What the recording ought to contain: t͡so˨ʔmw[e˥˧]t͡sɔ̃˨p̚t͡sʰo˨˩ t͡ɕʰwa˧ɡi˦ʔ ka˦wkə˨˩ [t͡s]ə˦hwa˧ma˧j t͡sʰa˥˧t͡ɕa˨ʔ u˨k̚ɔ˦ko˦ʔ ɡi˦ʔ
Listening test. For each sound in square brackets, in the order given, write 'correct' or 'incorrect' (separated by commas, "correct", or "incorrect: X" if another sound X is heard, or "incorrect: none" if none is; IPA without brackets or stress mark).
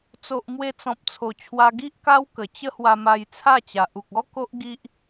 incorrect: e˧, incorrect: t͡ɕ